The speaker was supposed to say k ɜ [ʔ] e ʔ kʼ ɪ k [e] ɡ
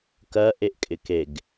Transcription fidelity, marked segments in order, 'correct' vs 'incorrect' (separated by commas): correct, correct